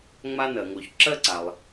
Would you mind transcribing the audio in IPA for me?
ŋ͡m a˥ n ɜ˨ ŋ o˨˦ ç ǁ ɜ˥ ǀ a˨ lˠ

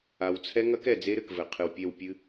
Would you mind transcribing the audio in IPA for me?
a˨ w t͡sʰ ɛ˦ ŋ ɐ˦ k ɛ˨ d͡z e˦ ɾ ɘ˨ k v ɘ˨ qʰ ɨ˨ w pʲ ɛ˦˨ w pʲ ɨ˦

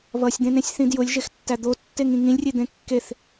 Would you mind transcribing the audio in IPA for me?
β ʌ sʲ d̪ ẽ n ẽ sʲ θ ĩ d j ʊ lʲ ʒ e x tː æ d̪ o tː e ŋ ĩ ŋ ĩ lʲ rʲ e d̪ ẽ kː e θ

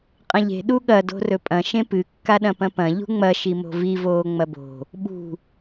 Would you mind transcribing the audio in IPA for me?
qʼ ɐ̃ ʎ e̤ ɗ u ɠ ɐ d o̤ r ɵ pʼ ɐ̃ ʃ ẽ p ɨ kː a ɗ ɐ̃ p ɐ̃ p ɐ̃ ʎ ṳ ŋ͡m ɐ ʃ i m o̤ v i v oː ŋ͡m ɐ b o̤ | ɓ ṳ

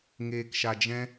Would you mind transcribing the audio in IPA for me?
ŋ eː˧ k ʃ a˧ d͡ʒ ɛ̃˦

